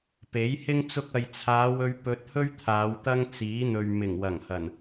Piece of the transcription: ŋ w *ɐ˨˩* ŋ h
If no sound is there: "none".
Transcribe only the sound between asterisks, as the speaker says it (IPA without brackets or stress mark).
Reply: ɐ˨˩